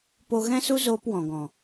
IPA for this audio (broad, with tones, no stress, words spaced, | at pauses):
po˧ɣɛ̃˦ su˦ zoː˦pwɔ̃˨ɡɔ̃˨